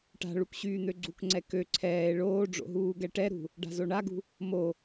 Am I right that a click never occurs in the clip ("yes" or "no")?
no